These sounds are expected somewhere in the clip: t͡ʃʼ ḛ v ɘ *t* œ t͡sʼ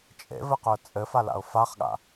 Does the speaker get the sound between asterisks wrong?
yes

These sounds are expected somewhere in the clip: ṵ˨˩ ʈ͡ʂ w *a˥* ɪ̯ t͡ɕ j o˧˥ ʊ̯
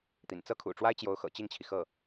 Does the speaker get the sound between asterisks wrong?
no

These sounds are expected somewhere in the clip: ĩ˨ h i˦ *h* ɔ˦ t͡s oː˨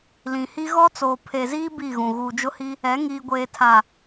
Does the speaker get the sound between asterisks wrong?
yes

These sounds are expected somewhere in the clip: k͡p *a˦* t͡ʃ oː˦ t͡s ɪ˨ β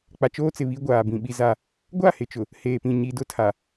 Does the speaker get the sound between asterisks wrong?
yes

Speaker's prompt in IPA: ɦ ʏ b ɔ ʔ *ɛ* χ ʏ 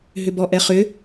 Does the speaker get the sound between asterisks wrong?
no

